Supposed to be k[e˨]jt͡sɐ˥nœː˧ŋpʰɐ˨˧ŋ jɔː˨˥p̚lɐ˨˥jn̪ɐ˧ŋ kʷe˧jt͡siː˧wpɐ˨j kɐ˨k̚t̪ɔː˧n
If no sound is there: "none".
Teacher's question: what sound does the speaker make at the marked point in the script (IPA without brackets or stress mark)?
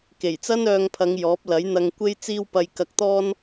e˨˩